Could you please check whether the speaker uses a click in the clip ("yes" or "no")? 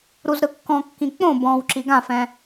yes